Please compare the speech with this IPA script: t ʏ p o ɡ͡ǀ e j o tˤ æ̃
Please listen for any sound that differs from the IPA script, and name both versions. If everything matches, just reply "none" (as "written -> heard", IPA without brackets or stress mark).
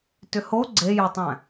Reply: p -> h